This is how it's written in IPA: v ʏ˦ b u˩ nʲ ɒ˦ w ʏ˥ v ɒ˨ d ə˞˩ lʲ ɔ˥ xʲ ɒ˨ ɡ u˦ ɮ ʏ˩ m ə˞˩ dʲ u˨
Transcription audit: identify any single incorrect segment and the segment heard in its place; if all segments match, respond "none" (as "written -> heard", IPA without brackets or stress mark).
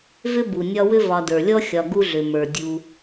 none